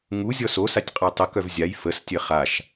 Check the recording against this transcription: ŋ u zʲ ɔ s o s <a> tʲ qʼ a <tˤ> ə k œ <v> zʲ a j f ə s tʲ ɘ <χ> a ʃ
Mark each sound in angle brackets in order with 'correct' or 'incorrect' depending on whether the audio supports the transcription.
correct, correct, correct, correct

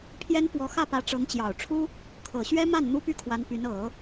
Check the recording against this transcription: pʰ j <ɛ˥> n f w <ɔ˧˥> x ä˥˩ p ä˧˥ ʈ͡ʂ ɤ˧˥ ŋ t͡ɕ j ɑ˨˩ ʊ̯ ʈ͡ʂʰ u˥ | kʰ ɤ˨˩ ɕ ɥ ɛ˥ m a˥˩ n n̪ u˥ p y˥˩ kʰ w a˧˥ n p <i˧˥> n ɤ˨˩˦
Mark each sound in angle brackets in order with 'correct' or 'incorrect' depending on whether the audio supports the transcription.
correct, correct, incorrect: y˧˥

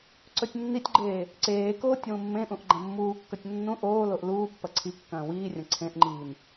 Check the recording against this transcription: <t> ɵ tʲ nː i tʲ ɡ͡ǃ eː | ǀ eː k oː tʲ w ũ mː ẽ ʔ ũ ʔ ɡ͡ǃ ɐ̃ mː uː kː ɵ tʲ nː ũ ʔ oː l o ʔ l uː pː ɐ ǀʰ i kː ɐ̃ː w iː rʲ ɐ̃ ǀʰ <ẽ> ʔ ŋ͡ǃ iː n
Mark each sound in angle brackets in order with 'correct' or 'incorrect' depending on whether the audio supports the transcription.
incorrect: ǀ, correct

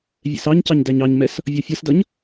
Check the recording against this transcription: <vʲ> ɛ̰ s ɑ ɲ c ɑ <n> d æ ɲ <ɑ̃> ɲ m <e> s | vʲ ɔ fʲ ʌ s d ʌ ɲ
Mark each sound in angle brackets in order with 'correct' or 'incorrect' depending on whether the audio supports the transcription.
correct, incorrect: ɲ, incorrect: ɑ, incorrect: ɛ

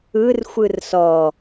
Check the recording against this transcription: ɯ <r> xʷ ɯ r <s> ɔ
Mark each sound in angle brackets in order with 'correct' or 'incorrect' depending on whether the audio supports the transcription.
correct, correct

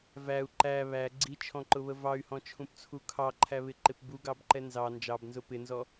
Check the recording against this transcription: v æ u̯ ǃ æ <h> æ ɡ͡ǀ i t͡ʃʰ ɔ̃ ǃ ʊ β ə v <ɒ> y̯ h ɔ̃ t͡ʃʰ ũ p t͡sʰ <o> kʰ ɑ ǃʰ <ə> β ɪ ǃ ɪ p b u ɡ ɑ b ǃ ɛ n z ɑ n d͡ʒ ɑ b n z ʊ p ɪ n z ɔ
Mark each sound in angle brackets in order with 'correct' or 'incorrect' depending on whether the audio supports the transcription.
incorrect: β, incorrect: ɑ, incorrect: u, incorrect: æ

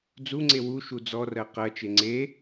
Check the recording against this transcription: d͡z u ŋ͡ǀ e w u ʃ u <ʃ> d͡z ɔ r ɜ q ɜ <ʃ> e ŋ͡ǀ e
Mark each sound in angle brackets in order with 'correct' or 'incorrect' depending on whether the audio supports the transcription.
incorrect: none, incorrect: t͡ʃ

